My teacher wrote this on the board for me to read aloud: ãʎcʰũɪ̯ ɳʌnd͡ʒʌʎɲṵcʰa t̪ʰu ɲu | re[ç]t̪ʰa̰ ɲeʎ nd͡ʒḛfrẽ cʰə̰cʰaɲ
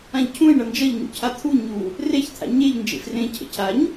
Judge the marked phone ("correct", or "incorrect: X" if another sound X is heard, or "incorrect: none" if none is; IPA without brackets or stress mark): correct